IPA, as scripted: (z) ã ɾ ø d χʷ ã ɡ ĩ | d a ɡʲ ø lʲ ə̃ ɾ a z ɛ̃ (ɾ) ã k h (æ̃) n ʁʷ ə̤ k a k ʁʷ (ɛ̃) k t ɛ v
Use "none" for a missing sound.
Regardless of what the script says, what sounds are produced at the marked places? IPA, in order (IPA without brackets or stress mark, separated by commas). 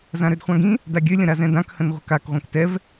z, d, ə̃, ɛ̃